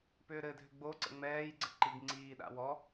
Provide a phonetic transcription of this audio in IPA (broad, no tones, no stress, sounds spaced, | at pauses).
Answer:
p ʏː ɾ ɘ dʱ ʏ ɡ͡b o ǀ ə̰ ŋ͡m ɛː j ɡ͡ǀ ə ǃ i ɡ ŋ͡ǀ iː ɗ a̰ w ɔ